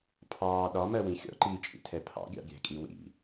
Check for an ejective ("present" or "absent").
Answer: present